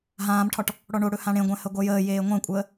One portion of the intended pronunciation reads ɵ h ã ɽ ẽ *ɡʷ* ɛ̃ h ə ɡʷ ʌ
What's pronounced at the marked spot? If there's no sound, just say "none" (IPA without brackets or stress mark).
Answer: ɡʷ